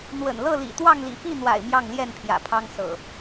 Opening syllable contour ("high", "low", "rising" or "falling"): low